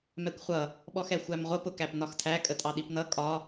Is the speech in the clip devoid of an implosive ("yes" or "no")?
no